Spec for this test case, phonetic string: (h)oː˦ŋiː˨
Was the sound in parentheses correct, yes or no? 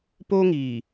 no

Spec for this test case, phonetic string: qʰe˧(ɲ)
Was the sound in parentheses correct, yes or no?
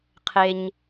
yes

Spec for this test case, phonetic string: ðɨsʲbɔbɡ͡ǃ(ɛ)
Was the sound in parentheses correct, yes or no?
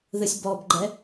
yes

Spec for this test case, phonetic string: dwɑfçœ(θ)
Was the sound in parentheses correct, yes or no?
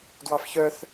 yes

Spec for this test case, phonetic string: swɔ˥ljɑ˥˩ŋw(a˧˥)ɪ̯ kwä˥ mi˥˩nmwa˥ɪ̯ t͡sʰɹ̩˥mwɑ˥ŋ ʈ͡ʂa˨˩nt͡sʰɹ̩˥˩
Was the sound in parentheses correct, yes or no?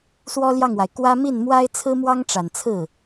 no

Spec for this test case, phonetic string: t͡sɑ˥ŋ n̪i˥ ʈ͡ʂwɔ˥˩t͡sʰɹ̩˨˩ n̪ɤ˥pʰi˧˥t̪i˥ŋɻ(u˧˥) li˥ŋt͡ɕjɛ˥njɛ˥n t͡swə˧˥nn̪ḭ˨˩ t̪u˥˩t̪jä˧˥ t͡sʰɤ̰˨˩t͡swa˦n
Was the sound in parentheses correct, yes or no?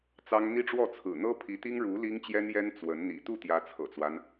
yes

